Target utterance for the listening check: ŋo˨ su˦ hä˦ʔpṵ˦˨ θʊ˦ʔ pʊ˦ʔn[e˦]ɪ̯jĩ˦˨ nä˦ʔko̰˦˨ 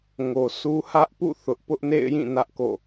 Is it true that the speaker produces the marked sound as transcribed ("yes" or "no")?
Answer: no